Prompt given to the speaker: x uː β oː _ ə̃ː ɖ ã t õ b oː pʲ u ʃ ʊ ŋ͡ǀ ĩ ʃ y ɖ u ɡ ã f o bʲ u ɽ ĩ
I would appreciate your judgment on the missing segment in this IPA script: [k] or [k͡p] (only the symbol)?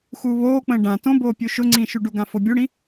k͡p